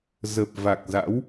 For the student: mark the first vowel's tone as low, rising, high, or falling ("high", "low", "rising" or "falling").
low